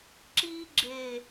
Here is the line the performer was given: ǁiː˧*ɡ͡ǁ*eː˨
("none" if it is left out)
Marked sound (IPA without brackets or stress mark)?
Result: ɡ͡ǁ